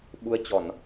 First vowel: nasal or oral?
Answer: oral